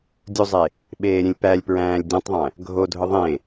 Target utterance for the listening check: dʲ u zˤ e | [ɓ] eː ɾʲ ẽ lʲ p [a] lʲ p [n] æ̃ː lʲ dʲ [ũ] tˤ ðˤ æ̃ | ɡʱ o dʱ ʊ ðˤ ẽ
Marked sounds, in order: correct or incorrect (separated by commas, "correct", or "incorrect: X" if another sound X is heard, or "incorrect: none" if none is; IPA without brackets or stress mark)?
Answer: correct, incorrect: æ, incorrect: ɹ, correct